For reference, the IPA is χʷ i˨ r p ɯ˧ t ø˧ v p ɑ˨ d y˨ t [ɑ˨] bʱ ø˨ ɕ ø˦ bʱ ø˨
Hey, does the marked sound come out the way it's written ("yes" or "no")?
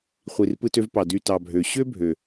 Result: yes